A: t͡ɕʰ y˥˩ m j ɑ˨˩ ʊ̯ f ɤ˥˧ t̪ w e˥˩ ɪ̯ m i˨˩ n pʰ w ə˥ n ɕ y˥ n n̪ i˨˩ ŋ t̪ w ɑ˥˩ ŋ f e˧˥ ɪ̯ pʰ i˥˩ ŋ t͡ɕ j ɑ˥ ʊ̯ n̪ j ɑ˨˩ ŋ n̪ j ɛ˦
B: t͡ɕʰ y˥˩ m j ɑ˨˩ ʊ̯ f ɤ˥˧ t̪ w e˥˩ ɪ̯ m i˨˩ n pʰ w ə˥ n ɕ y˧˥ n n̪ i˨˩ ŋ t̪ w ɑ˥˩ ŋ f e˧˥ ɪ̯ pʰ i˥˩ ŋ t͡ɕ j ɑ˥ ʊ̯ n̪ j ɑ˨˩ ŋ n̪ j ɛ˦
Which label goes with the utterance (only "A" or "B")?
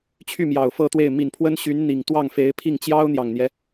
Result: B